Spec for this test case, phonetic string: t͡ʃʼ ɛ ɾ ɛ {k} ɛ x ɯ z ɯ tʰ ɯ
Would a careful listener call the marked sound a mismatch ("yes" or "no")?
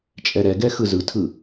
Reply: yes